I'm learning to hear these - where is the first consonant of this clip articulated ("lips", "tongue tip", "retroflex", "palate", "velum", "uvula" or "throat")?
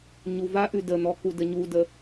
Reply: palate